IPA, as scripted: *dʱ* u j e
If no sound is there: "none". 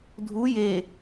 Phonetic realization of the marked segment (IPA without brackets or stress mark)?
dʱ